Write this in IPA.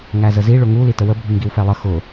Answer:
ŋ æ z ə z i ɭ ʊ ŋ u l i t ə w ə bʱ i ŋ ɡ i w f ɛ lˠ ə x ʊ

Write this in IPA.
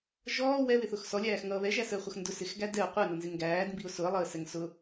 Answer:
ʒ ɔː w ɛ β ɪ θ ʊ x s ɔ lʲ æː x ŋ ʌː β ɛ ʒ æ s əː χʷ ʌ x n d ʊ s ɪ x ɡ æ d ɛ ʊ̯ qʷ ʌ ɪ̯ n ʌ n z ɪ ŋ ɡ æː d m b i ʊ̯ s ʊ ə̯ lˠ əː s ɛ ŋ s ʊ

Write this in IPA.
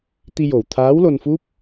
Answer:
t̪ i˧ j o˨˩ w t̪ʰ aː˧˥ w l o˧ n f u˦˥ p̚

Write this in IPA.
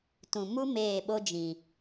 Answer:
t ũ˨ m u˦ m eː˦˨ ɓ o˦ d͡ʒ ĩ˨

